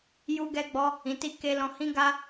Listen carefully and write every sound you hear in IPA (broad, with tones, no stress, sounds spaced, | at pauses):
j u˦ ɡ ɛ˦ ɡ͡b ɔ˦ | ĩ˨ t i˧ k e˦ l ɔ̃˧ h ĩ˦ ɡ a˦